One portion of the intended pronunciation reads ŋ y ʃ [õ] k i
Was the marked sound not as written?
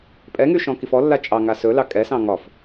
yes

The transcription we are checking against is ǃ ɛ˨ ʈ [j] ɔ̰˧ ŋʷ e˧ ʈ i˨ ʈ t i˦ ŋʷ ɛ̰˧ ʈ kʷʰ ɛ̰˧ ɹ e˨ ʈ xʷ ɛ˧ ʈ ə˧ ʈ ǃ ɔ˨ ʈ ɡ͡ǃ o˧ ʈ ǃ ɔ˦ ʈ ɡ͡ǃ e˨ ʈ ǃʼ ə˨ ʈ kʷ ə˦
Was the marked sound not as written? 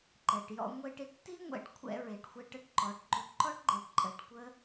no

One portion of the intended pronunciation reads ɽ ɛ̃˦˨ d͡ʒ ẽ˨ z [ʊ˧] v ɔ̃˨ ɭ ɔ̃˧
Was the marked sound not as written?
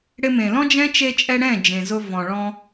no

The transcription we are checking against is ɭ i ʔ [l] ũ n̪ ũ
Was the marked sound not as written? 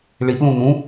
no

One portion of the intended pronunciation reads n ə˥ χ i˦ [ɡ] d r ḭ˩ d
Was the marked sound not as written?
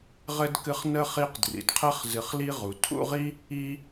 yes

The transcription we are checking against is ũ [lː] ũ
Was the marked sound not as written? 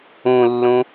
no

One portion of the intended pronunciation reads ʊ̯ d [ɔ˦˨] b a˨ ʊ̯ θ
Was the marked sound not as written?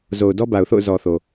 yes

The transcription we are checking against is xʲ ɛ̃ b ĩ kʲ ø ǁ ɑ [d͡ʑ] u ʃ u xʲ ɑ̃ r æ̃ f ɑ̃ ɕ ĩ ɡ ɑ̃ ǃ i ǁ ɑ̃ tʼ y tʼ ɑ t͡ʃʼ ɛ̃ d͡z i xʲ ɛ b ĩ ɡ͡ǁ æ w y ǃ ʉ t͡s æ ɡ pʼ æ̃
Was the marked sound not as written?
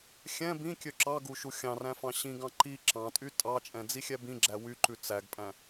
yes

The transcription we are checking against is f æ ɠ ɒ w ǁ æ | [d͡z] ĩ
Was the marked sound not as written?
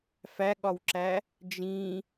yes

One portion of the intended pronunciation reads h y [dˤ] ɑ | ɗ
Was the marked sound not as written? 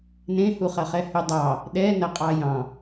no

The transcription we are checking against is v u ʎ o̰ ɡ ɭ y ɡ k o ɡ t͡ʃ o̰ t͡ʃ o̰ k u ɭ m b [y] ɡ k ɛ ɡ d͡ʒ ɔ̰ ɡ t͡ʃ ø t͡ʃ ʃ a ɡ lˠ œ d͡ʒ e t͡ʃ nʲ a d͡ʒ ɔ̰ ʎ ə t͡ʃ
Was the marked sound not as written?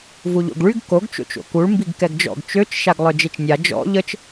yes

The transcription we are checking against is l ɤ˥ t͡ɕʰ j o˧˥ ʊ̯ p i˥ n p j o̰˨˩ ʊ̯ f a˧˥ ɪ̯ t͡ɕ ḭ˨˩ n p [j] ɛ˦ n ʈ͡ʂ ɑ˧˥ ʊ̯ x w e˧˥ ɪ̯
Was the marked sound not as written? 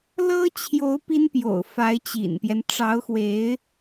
no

